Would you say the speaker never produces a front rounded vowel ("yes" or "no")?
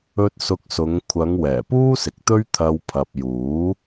yes